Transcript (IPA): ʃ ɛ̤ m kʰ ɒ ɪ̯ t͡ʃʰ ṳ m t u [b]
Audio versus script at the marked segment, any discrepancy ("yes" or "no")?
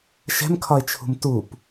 yes